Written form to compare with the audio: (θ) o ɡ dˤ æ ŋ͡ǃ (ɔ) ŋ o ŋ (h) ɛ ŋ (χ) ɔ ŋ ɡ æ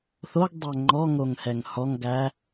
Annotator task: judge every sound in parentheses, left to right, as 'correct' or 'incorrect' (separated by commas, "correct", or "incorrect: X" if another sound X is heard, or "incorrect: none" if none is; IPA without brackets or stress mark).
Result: correct, correct, correct, incorrect: h